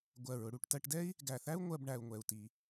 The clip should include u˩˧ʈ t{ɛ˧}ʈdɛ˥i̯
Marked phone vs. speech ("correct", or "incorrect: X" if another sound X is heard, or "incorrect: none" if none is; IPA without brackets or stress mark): incorrect: ɜ˧